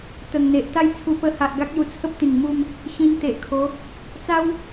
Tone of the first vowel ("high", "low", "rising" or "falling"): low